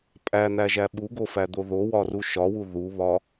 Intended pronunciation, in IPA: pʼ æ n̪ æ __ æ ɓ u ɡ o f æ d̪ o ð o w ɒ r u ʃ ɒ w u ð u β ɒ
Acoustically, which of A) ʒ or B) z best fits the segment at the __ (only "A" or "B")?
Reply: A